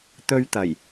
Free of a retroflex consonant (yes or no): yes